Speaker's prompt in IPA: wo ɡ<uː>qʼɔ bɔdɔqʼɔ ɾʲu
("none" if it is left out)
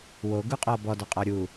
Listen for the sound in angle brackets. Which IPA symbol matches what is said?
u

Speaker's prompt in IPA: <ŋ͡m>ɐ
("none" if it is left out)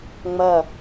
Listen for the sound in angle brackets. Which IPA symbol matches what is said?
ŋ͡m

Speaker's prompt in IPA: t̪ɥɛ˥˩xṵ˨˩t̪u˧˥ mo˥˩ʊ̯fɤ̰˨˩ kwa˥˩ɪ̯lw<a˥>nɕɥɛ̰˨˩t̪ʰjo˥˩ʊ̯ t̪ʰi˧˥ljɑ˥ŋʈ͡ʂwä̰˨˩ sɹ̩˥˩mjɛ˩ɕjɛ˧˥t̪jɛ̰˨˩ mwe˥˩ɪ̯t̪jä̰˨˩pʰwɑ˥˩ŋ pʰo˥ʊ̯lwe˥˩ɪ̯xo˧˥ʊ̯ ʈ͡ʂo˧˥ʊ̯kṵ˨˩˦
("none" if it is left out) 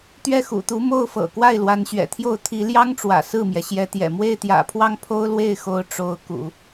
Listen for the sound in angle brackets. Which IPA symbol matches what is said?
a˧˥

